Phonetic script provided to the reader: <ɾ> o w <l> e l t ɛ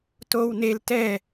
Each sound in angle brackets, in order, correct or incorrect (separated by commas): incorrect, incorrect